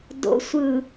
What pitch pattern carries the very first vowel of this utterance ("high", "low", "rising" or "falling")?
rising